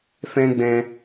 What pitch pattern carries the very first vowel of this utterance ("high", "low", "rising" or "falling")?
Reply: high